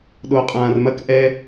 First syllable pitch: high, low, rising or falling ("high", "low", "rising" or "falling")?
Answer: low